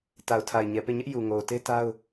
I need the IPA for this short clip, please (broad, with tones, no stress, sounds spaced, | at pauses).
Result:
t a˨ ʊ̯ tʰ a˨ ɪ̯ ɲ ɛ˨ p e˦˨ ɲ ɛ˦ ʔ j u˨ ŋ o˨ ʊ̯ t e˦ t a˦ ʊ̯